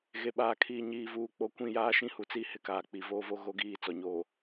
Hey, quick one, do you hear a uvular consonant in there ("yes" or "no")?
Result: no